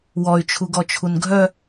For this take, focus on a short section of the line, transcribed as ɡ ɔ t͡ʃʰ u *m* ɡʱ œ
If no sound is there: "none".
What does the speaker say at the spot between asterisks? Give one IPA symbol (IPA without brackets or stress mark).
n